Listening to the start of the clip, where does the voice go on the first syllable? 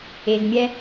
low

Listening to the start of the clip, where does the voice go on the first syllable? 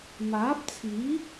rising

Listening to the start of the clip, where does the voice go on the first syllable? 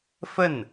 falling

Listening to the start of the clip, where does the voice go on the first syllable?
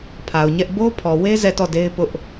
low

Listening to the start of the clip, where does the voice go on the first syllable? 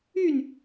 falling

